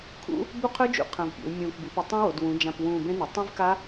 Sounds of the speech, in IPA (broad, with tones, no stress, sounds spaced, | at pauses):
kʰ ṵ˦˥ | b u˦˥ qʰ ɵː˦˥ d͡ʒ ṵ˨˩ qʰ ɐ̃˨˩ v pʲ ḛ˩˧ w mʲ ũː˨˩ k b i˩˧ p i˩˧ tˤ ũ˦˥ w o˩˧ d w ũ˩˧ d͡ʒ ã˨˩ p w ũː˨˩ b ẽ˦˥ n u˩˧ tˤ ĩ˦˥ v k a˦˥